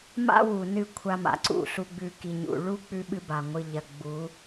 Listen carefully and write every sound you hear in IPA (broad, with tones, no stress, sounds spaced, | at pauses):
m a̰˦ w u˨ n ɨ˦˨ kʷʰ a˦ m a̰˨ ǀ ṵ˦˨ ɬ u˨ ɡ͡b ʉ˨ k i˨ ɲ ṵ˨ ɭ u˦ k͡p ʉ˦ ɓ ɨ˦ b a˨ ŋʷ ɨ˨ ʎ ɐ˨ ɡ͡b u˨˦